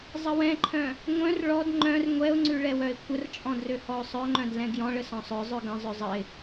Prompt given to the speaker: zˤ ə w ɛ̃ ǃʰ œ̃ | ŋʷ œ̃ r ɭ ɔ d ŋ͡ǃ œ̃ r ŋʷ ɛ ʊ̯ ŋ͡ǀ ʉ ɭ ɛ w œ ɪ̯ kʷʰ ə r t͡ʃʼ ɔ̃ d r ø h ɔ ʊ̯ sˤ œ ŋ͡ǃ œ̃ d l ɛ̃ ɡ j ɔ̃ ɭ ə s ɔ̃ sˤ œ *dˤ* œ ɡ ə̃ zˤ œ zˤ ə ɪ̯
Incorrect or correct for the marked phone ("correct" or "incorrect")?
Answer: incorrect